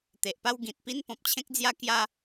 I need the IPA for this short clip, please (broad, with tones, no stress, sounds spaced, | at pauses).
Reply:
t̪ e˨ ʔ p a˦ w ɡ ĩ˨ t̚ p i˦ n p ɔ̃˨ p̚ t͡ɕʰ ẽ˦ k̚ d͡z j a˦ k j a˦